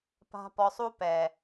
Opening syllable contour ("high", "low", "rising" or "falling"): high